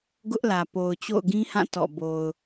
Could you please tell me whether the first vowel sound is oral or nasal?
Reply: oral